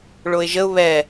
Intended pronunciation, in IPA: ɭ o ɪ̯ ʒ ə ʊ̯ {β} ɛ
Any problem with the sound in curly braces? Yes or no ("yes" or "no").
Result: no